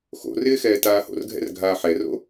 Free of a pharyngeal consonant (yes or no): no